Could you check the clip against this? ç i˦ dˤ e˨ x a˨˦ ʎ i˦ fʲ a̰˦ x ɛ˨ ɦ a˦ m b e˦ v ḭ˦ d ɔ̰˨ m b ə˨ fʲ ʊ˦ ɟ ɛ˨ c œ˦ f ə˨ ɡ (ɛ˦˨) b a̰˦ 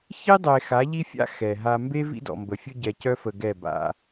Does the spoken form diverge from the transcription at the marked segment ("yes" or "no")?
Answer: no